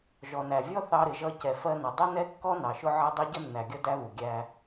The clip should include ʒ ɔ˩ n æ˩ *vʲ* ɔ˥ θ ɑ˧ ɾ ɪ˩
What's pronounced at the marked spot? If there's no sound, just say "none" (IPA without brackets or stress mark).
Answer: vʲ